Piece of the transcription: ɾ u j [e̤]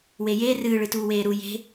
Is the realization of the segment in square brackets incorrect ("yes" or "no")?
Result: no